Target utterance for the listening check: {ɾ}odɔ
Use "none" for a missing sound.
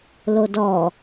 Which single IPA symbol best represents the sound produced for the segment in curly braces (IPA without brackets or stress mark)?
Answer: l